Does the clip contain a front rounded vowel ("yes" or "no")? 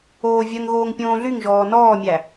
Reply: yes